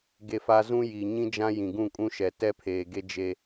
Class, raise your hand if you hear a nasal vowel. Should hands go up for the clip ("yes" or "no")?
yes